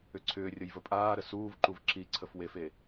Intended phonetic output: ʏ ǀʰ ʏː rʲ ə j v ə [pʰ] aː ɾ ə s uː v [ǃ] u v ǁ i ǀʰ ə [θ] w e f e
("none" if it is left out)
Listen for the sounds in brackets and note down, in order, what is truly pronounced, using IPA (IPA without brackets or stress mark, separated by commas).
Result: pʼ, ǃ, f